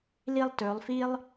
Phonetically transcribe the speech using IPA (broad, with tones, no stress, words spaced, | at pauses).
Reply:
li˥˧lˠtɵː˩˧lˠfi˥lˠ